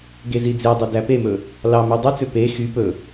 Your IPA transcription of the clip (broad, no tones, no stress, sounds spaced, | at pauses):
ɡ e z i d͡z e dˤ y d æ p e m ɵ | l ɑ m ʉ dˤ y t͡s ø p e x y p ɵ